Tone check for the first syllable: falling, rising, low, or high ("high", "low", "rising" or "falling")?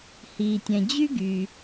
low